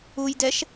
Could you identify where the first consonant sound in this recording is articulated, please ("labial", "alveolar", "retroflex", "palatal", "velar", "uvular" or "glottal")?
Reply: palatal